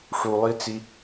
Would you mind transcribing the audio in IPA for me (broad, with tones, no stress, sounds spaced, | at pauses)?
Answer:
ʂ u˧ lˠ i˦ t͡s i˦